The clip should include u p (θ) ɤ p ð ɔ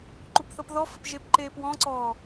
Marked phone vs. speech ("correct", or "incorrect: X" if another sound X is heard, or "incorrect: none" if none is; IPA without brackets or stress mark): correct